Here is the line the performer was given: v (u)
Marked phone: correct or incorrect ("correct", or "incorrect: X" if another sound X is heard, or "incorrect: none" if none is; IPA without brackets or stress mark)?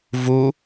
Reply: correct